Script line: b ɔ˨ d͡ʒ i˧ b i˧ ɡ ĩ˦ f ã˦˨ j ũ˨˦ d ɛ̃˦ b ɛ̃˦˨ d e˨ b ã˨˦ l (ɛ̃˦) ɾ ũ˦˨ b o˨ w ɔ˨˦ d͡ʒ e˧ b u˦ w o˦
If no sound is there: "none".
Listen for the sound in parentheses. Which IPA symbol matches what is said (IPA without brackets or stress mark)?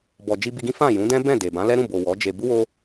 ɛ˦